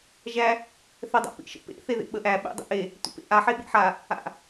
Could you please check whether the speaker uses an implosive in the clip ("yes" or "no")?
yes